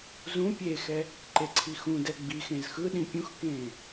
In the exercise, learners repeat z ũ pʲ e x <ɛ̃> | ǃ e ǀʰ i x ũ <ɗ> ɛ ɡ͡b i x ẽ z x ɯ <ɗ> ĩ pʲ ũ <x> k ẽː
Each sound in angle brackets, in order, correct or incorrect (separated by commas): incorrect, incorrect, correct, correct